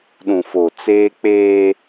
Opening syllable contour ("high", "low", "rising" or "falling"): low